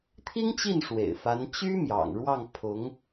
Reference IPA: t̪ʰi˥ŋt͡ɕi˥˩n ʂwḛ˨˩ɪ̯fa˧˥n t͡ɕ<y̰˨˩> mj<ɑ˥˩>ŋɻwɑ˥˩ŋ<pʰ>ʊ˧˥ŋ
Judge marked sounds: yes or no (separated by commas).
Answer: no, no, yes